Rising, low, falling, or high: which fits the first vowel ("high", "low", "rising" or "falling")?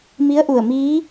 rising